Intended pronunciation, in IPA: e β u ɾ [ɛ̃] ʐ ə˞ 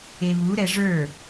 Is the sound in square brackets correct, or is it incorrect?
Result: incorrect